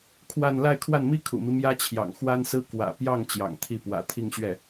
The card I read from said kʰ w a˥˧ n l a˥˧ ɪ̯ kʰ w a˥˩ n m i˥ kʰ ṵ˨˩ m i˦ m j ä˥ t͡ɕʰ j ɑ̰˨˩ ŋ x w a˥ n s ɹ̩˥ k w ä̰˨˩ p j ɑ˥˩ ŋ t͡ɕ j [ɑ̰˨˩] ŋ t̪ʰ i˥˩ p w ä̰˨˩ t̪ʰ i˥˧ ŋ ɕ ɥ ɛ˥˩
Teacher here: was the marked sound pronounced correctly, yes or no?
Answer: yes